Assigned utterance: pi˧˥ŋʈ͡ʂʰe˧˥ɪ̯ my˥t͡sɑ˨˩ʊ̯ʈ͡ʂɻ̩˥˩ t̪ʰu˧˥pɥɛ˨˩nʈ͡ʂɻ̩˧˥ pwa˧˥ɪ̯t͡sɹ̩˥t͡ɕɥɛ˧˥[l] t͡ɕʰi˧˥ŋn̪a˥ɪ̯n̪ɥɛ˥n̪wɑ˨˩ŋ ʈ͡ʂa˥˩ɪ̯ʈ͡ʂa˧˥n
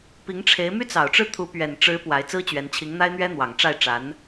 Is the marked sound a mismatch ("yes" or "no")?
yes